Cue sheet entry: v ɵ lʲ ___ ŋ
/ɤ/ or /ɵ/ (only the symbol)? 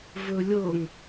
ɤ